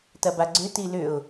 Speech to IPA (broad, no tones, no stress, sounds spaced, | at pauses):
t ɐ b a ɡ͡ǀ ʏ t i l ʏ ʊ̯